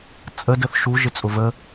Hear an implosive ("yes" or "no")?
no